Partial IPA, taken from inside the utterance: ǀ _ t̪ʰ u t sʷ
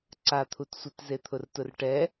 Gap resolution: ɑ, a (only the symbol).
a